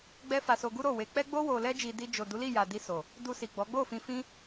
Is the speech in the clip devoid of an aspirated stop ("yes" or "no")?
yes